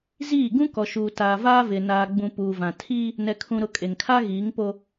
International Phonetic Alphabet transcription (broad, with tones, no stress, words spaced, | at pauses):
ziː˦˨ ɡũ˦kɔ˨ʃuː˨ taː˨vaː˦vɪ˨ naː˨ɡ͡bũ˨ puː˨vã˨tʰiː˦ | nɛ˨kʰũ˨ɾʊ˨ kʼe˨ŋkʰa˦ ɣiː˨˦ŋpo˦